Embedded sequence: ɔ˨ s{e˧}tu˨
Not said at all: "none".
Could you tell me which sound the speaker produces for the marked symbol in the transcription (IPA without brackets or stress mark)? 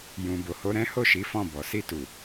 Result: i˧